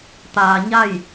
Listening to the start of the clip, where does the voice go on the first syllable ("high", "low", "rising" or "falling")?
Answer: low